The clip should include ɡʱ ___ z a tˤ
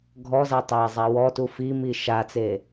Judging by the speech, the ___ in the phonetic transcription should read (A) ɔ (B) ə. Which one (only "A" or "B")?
A